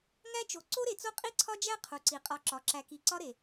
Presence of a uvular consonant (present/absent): present